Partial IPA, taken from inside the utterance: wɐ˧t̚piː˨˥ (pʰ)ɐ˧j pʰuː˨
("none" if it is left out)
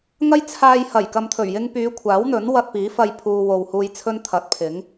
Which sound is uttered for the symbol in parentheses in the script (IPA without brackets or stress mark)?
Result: f